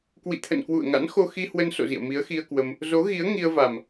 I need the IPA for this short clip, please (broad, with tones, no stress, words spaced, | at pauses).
kwḭ˧˨t̪ʰə̰˧˨n kwṵ˧˨ə̯ŋa̰˧˥n xo˧xi˧hwə˧nso̰˧˨ zḭ˧˨ə̯mi˨˦ə̯xi˧ə̯kwə˧m | zo˨˦ɣi˨˦ə̯ ŋi˧ə̯va˨˩m